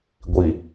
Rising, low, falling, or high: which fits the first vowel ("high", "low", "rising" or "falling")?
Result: low